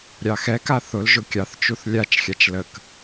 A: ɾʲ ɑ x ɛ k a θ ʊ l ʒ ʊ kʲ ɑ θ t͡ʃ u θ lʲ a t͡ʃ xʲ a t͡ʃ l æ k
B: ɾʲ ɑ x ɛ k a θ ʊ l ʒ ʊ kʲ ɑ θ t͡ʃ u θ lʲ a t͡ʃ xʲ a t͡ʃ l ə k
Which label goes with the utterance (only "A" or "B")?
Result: B